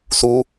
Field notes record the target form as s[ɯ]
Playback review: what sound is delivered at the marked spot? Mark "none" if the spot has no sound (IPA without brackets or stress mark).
u